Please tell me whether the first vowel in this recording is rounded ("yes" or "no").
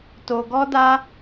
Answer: yes